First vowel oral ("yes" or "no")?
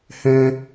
no